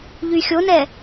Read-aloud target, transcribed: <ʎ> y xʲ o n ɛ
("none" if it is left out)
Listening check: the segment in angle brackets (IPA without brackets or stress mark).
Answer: ʎ